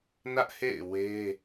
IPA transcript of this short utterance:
nä˦ʔhḛ˦˨ɪ̯ we˦

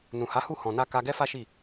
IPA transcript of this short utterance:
nũ˨ha˨˦hu˦˨ hɔ̃˨na˧ ka˧ɡɛ˦fa˦ʃi˦˨

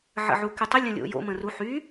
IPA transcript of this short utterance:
ʕə̰ʕukytˤə lʲə̃lʲo̰jo̰ mə̃ru ħy

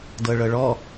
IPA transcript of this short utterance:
dɤɭɤɭɔ

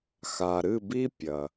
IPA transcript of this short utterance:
xa˩ɾɨ˦˨bi˦ pʲɐ˩

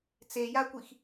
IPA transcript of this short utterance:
t͡sejakʷix

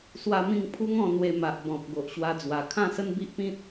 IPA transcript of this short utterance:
swa˧mĩ˧ŋ pʰu˦ŋɔ̃˧ n̪we˧ma˨ʔ bɔ̃˨p̚ ɡo˨ʔɕwa˧d͡zwa˨˩ kʰã˥˧sə˦nbi˦ʔpĩ˦t̚

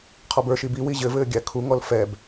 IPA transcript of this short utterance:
qʰɔbə˞ʃi biwi ʑɘvɘː ɡʲækʰuŋɔl fɛb

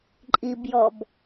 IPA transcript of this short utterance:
ǃʼibjɔb

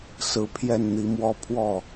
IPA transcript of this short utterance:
sɹ̩˧˥pʰjɛ˥˩nn̪i˧˥mwɔ˥ pʰwɔ˥˩

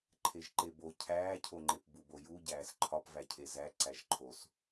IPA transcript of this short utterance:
ǃʰeʒǃebo cʰæːcʰoŋ͡ǃep buboju ɟæːsǃʰɒpvæcʰe zæǀæʒ ǃʰos

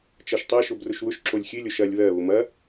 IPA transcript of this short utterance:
t͡ʃɐʃtˤɐ ʃobrʊʃwʊʃ ǁolʲxʲɨ lʲoʃɐlʲ βɜ βʊmɐ

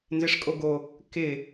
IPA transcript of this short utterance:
nzɪʂkʼoɡo | kɪ

